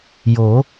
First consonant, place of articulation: palatal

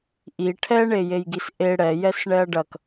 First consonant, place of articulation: glottal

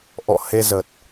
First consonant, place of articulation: glottal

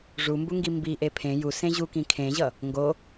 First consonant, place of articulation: retroflex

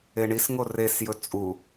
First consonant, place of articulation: retroflex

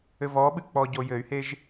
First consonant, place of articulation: labial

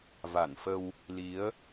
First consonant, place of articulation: labial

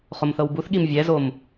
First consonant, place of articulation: uvular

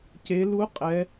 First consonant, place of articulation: palatal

